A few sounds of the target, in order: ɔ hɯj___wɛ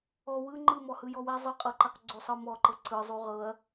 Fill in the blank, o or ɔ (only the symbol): ɔ